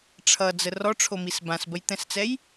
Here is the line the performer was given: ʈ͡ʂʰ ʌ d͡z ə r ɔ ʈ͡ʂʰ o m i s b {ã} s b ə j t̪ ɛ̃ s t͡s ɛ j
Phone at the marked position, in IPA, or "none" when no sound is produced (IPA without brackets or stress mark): ã